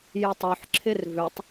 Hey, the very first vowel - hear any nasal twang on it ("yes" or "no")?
no